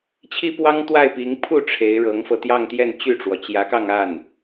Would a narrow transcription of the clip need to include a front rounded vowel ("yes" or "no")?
yes